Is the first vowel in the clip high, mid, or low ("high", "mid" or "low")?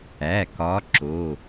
low